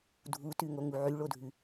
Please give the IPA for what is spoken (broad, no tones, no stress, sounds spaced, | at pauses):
dʱ u t ʉ ŋ o ŋ u ʕ y ɭ o dʱ ʉ